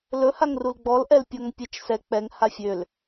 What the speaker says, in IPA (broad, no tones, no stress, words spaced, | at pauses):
lɵhaŋrul ɡ͡bɔlʔɛlpʲɔŋ pʲɛt͡ʃsɛ k͡pɛŋ hafʲøl